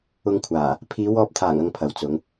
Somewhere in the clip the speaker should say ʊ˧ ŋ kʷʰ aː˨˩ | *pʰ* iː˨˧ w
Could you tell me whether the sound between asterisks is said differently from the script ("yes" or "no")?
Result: no